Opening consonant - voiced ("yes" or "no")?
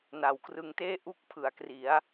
yes